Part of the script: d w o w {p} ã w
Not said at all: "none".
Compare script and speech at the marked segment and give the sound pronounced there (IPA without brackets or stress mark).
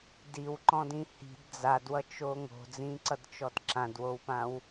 p